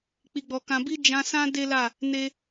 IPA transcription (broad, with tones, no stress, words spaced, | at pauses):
k͡pi˨ɡ͡bɔ˨ kã˨bi˧ d͡ʒã˧sã˦ de˦la˦˨ | ne˦